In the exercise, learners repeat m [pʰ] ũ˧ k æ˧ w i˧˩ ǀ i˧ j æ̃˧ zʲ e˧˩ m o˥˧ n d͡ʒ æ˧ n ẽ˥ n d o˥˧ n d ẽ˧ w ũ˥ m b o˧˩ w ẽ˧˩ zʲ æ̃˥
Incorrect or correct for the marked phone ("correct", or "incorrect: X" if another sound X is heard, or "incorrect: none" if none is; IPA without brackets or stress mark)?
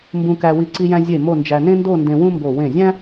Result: incorrect: b